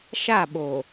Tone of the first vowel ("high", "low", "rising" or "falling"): falling